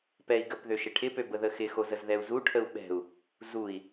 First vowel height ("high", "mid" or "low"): mid